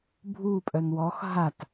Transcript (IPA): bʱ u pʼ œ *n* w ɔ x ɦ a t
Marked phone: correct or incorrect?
correct